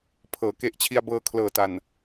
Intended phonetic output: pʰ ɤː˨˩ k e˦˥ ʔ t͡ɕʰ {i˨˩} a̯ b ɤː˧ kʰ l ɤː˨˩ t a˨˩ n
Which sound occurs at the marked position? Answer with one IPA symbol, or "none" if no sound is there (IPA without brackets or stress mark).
i˧